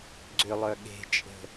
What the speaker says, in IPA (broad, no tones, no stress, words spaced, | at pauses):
ɡ͡ǀʏlˠœ ɠe̤t͡ʃʼə̤